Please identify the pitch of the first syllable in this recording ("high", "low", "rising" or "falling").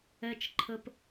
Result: high